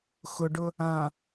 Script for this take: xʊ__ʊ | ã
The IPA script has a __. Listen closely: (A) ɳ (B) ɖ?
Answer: B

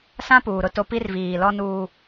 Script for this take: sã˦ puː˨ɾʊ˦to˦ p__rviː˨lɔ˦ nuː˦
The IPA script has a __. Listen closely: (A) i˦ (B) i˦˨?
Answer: A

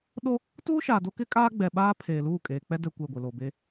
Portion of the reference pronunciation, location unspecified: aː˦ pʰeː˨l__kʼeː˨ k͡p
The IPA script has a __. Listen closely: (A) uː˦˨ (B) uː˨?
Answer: A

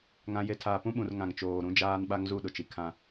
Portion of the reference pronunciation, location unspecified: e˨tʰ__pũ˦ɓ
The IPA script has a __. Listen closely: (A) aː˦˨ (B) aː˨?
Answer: B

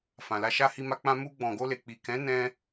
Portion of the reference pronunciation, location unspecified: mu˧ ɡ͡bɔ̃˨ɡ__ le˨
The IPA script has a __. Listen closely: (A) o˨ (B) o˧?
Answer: B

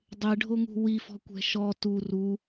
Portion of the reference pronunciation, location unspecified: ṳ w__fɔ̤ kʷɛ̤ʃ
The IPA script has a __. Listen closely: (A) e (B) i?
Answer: B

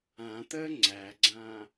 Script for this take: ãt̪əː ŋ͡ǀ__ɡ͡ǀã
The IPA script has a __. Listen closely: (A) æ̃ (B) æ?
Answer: B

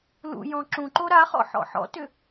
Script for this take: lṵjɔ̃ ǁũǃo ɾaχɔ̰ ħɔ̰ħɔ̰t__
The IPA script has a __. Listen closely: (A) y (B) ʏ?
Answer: B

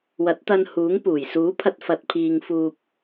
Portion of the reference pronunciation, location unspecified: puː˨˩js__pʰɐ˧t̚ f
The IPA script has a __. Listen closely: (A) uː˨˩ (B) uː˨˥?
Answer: B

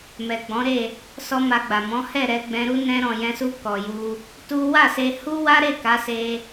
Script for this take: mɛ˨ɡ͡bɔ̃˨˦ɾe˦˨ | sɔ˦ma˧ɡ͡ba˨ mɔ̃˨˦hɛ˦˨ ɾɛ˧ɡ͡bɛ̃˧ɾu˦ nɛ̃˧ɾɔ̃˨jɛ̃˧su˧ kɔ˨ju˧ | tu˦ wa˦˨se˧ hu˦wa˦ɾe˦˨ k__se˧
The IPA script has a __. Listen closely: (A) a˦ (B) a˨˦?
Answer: B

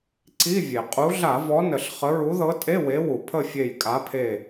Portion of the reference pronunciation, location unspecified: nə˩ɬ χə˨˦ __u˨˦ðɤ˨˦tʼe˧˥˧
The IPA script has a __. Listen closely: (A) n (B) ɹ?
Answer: B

